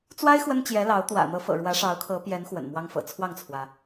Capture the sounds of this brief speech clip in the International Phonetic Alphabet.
t͡swa˥ɪ̯ xwə˥nt͡ɕjɛ˧˥lɑ˧˥ʊ̯ t̪wä̰˨˩n̪ɤ˧˥fɤ̰˨˩ ɻwä˧˥ʂɑ˧˥ʊ̯kʰɤ˧˥pjɛ˧˥n xwə̰˨˩nmwɑ˥ŋfɤ̰˨˩ t͡sʰwɑ˥˩ŋt͡sʰwä˩

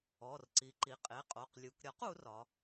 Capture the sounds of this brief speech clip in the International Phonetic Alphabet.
ɔ˩˧˩rǀi˩˧ǃi˩˧˩ qʼe˩˧˩qʼo˩˧˩qlʲu˩˧k ɾʲɒ˩˥qu˩˧r ɒ˩˧

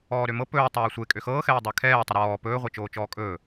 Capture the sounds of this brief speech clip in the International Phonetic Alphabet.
ɔːɾømɤ pɵː tˤɤːsʷekʼø xɤːxɛː dˤɜkʰɛːtˤɵ ɾɔː pɵːʁʷe t͡ʃoːt͡ʃɔːkʼɵː

